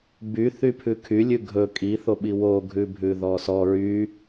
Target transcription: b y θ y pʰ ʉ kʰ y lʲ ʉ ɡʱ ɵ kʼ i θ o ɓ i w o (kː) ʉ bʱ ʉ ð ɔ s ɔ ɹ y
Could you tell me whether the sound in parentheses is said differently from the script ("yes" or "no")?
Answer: yes